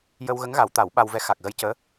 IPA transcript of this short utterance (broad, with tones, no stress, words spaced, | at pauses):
jə˧wɣə˧˥ŋɣa˨˩˦wt̪a˨˩˦w ɓa˧wvɛ˧˥ xa˨˩k̚ɣə˧jcəː˧˥